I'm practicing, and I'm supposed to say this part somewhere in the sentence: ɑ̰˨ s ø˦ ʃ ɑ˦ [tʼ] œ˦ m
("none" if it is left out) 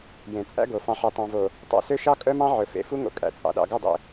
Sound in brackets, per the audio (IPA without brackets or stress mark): kʼ